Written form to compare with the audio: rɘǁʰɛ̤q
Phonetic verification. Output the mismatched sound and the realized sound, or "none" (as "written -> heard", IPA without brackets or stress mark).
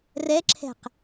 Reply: ɘ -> ɛ